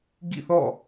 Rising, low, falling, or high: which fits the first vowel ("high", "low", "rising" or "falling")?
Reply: falling